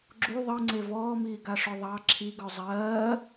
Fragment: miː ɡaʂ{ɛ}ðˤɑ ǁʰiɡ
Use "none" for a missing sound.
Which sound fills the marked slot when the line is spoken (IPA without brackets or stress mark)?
œ